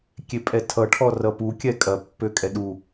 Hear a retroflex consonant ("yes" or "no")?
yes